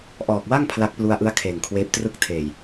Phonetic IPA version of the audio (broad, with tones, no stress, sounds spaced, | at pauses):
ʔ ɔː˨˩ k̚ w a˥˩ ŋ pʰ l a˦˥ k̚ p l u˦˥ a̯ ʔ ɯ˦˥ a̯ kʰ eː˨˩ ŋ kʰ w eː˦˥ p̚ t r ɯ˥˩ k̚ tʰ eː˨˩ j